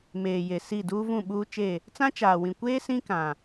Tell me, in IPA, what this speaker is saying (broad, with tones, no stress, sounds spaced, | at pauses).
m eː˨ j e˨ s i˦˨ d uː˦ v ũ˦˨ ɓ uː˦ t͡ʃ e˦˨ | t͡s ã˦ t͡ʃ aː˨ w ĩ˨ kʷ eː˦ s ĩ˦ k ã˨